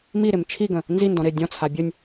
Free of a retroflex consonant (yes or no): yes